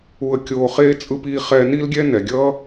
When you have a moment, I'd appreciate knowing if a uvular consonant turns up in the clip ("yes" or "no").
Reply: yes